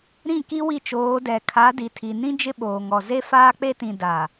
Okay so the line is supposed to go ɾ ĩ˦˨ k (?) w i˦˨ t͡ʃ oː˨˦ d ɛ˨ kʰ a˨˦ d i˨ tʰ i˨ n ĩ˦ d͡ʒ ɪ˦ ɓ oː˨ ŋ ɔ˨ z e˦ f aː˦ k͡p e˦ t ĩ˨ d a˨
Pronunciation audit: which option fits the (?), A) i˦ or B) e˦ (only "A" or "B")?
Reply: A